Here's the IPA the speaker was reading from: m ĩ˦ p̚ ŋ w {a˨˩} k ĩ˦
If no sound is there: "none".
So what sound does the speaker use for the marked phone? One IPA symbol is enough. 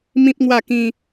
a˥˧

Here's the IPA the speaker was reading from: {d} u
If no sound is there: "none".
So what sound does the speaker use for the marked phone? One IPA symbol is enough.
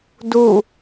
d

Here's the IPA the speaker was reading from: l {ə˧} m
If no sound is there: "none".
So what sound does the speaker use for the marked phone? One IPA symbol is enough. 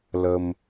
ə˧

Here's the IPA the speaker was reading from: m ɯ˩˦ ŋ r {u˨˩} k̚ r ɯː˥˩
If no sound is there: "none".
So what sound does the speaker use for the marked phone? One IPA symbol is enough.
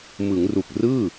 u˨˩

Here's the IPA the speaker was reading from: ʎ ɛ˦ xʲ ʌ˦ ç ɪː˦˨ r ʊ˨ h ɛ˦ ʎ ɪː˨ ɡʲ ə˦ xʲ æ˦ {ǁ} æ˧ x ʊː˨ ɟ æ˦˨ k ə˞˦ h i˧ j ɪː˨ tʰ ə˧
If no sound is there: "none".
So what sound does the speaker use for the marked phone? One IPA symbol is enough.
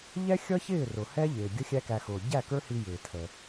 k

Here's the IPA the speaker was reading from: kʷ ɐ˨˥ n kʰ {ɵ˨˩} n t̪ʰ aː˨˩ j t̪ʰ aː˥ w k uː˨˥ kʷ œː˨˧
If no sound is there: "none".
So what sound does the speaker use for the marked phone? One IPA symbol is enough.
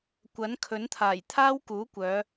ɵ˨˥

